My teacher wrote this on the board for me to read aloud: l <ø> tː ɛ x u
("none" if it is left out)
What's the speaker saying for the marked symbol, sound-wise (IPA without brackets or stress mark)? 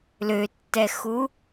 ø